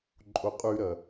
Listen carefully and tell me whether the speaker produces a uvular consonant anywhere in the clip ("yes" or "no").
yes